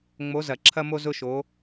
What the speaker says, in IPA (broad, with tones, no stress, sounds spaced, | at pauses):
ŋ͡m o˨˦ z ɐ˨˩˦ ǁʰ ɐ˦ m o˦ z ʊ˦ ʃ o˨˦